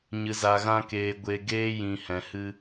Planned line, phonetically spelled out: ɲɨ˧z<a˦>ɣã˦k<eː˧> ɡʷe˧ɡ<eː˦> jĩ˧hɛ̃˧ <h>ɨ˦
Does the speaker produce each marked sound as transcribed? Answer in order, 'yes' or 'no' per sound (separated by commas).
no, yes, yes, yes